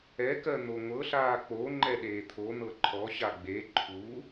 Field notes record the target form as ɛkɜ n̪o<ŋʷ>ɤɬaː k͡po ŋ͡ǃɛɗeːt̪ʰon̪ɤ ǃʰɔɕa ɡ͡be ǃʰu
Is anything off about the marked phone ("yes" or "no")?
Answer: no